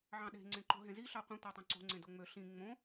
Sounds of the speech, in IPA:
ʕ ɑ̃ ɗ e̤ ŋ͡ǀ ẽ ǃ o̤ ɦ ẽ z i ɬ ɑ qʷ ẽ tʷ ɑ tˤ õ ǀ o̤ ŋ͡ǀ ẽ d o ŋ͡m ø ɬ ĩ ŋ͡m õ

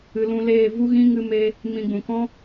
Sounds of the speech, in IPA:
ɨ˨ l ũ˧ l eː˦˨ v u˦ ɣ ĩ˦ ŋ ɨ˦ m e˦ | m ĩ˧ ɡ͡b ũ˨ k ɔ̃˦

